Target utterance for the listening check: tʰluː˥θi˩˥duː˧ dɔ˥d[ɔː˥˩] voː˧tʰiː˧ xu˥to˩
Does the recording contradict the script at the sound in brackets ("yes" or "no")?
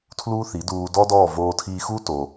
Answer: no